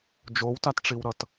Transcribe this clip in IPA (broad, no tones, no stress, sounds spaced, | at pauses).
d͡ʒ o w t a t ʈ͡ʂ i w ɾ ʌ t